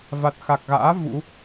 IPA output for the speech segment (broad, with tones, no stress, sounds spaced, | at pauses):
v a˨˩ t̚ x a˨˩ k̚ ɣ a̰ː˧˥ v ṵ˧˥